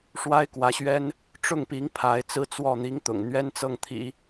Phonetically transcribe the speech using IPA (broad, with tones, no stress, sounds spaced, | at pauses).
ʂ w a˥ ɪ̯ k w ä˧˥ ɕ ɥ ɛ˥ n | ʈ͡ʂ ʊ˥˩ ŋ p i˧˥ ŋ pʰ a˧˥ ɪ̯ t͡s ɹ̩˥ t͡s w ɔ˥˩ n̪ i˥ ŋ t̪ ʊ̰˨˩ ŋ n̪ ɥ ɛ˥ n t͡s ɤ˥˩ ŋ t̪ʰ ḭ˨˩˦